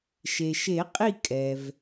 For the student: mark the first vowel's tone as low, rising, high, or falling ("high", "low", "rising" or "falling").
low